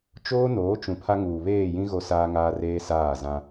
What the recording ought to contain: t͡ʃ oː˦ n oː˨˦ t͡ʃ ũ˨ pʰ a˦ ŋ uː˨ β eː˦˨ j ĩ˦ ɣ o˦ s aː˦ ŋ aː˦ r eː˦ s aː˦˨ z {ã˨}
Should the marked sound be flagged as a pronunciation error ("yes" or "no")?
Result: yes